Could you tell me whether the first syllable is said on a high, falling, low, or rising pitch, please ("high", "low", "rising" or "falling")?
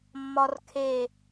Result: high